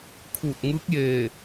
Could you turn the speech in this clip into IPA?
kʰ uː˧˩ t̚ ŋ ɯː˧˥ k̚ j eː˧˩

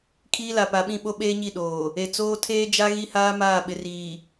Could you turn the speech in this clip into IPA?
kʰ iː˦ l a˨ p a˨ ɓ ĩ˦˨ ɓ o˦ ɓ eː˦ ɲ i˦˨ ɗ oː˨ | e˨ t͡s oː˦ tʰ eː˦ d͡ʒ a˦ ɣ i˦ h aː˦ m aː˦˨ ɓ ɪ˨ r iː˨

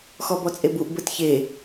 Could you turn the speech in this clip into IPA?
x ɔ b ɔ t͡sʼ e b u ʔ b ə t ç e

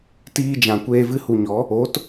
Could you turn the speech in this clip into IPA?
t iː˧ d͡ʒ ã˨ kʷ eː˧ v ɨ˧ h u˨ ɲ ɔ˨˦ | o˨˦ t

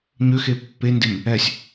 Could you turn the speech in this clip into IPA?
ɲ ø x e pː e n d e m | ɛ sʲ

